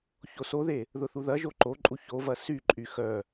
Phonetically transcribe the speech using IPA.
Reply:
çosoðe | ðʊθuðɐʒo ǃoǃʼu çovɐ syǃʼy xœ

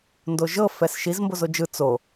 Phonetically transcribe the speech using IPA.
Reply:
ndoʒɤ fɛsʃiz mbozod͡ʒɯ t͡so

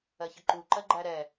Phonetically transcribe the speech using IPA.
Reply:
ɜçəǃu ǃɜɡ͡ǃæɾɛ

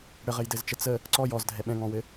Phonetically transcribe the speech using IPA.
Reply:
ɽəʁɘjdɘzt͡ʃə t͡sə | ǀɔj ɔzdʱɛ ɓɛ̃ŋɔ̃wɘ

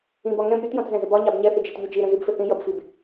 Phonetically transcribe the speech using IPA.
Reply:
ĩbɒ ŋɛ̃b ɾʲutjɔ̃tzɛ̃zə bɒɲɑb ɲɛθɪd͡ʒɛtʎu d͡ʒiɾə̃zibfɪ θĩjʌbfib

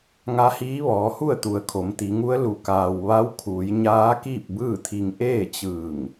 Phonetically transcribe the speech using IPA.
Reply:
ŋa˧˥hiː˧˥ʋɔː˩˧hu˥˨ə̯ t̪u˩ə̯kʰo˩˧mt̪i˩˧ŋu˧˥ə̯ lu˩kaː˩w ʋa˧˥wkʰuː˩˧j ɲaː˧˥ kiː˥˨p̚bɯː˥˨t̪ʰi˧ŋ ʔeː˥˨t͡ɕɯː˧˩ŋ

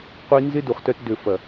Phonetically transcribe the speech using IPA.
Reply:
qʷi˧nzɪ˦ du˨χtœ˧t dø˨fɐ˨

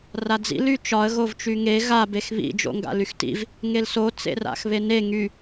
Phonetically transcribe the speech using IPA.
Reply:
rad͡zḭ lyt͡ʃɒə̯ ɣovt͡ʃyŋe ɣa bexβḭ d͡ʒo̰ŋɡa̰lyxtḭv | ŋelso t͡sḛra̰xβene ŋy

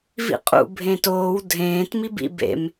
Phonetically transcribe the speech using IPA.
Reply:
vḭqʼṵ bʱẽtoːw dʱẽːt mibḭ bḛm

